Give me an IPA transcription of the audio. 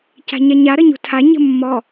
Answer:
c a̤ ɲ a ɲ a ɾ ə ɲ ṳ tʰ a ɲ ə̤ mː ɔ

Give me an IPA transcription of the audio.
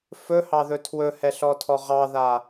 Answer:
f ɵ h ɑ ð ɵ tʰ w ɵ h ɛ ɬ ɔ tʰ ɔ ʁ ɑ ð a

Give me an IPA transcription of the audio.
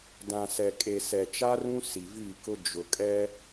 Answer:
d ã˨ s ɛ˨ kʼ e˨ s ɛ˨ t͡ʃ a˦ r ũ˦ s i˨ v i˦˨ k ʊ˦ d͡ʒ ʊ˨ kʼ ɛ˦

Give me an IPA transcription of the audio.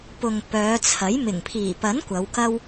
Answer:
p ʊ˨ ŋ p œː˨˧ t͡sʰ ɐ˨˥ j m ɪ˨˩ ŋ pʰ iː˨˩ p ɐ˨˥ n kʷ ɐ˨˧ w k ɐ˥ w

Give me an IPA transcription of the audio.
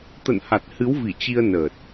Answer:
t̪ ə̰˧˨ n h a˨˩ t̚ h ɨ˨˦ w v i˧˩ t͡ɕ i˧ ə̯ n əː˨˩ t̚

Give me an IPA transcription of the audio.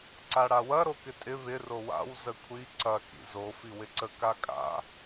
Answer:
ǀ a ɽ a w ɐ ɾ o k ɪ tʼ ɪ β ɪ r o w a̰ w z ə kʷʰ i ǀ ɐ k ḭ z o f i w ɪ ǀ ə k a kʼ a̰

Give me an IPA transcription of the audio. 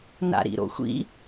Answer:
n a̰ ɾ ḭ ɾ o̰ xʷ ḭ

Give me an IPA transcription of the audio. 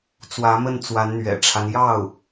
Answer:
t͡s w ä˧˥ m ə˥˩ n t͡s w a˧˥ n n̪ ɥ ɛ̰˨˩ ʈ͡ʂʰ a˦ n j ɑ˥˩ ʊ̯

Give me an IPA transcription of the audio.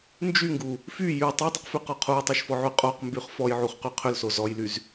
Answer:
n d͡ʒ y ŋ ɡ u | f y j y tˤ y dˤ y q f y q ɔ qʰ u j tˤ o ʃ f ɔ ʕ y qʼ o q m b y χ f ɔ j ʕ u χ q y qʰ ʏ l s o z ɔ j l y z

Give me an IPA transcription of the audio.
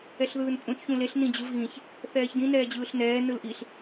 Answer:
ɛ ɬ ð ɯː n pʼ ũ t ç ũ l e ɬ n ĩ d͡ʑ ɯ v ɣ ĩ ç | θ ɛː ç d ĩ n ɛː d͡ʑ ɯː ɬ n ɛː n ɯ l ʔ i ɬ

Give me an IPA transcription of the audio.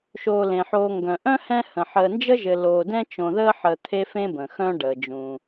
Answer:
ʃ oː˨ l ẽ˩ ħ oː˨ ŋ ɡ œ̃˩ ʔ œ̃˥ h ɛ̃˦ h ə̃˩ ħ əː˨ n d͡ʒ ə˥ ʒ ɘ˨ l oː˨ d ɛ̃˥ t͡ʃ õ˨ ð əː˥ ħ əː˨ t̪ʰ e˦ f ẽ˦ b ə̃˩ x œ̃˦ ɖ əː˩ d͡ʒ ũ˩

